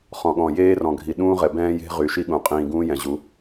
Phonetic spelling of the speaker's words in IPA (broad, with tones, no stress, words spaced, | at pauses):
χɔ̃˨ɠɔ̃˨ jeː˦rɔ̃˨ɡʱi˨ ɗũː˦ʁɛ˨ bɛ̃ː˦je̤˦ ʁy˨ʃi˦ɠũ˨ qʼĩː˨ ɡũː˦ jɛ̃˨ʑu˨˦